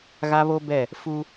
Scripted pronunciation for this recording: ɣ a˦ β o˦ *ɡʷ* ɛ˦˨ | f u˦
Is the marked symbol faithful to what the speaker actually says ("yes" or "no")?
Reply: no